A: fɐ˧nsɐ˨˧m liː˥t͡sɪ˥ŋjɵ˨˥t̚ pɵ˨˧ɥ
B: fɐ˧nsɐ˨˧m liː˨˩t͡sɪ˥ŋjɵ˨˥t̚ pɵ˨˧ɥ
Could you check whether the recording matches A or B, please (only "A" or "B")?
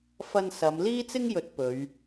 A